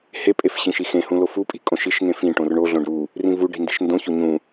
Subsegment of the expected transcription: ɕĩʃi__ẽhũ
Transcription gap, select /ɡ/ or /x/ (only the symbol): x